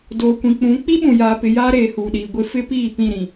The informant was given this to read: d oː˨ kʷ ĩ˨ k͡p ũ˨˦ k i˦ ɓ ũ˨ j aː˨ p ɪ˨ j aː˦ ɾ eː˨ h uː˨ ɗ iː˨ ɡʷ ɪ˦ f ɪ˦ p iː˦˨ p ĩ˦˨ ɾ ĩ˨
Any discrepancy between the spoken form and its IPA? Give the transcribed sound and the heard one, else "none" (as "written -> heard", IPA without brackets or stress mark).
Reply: k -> k͡p